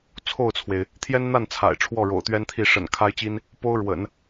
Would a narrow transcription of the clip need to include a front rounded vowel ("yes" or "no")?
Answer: no